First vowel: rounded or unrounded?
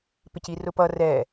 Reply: unrounded